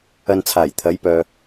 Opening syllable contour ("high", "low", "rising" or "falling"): low